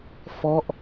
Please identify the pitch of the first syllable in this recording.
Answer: falling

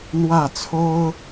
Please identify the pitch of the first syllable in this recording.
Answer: falling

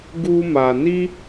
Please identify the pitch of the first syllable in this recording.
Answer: high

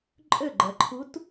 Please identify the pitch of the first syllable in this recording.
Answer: falling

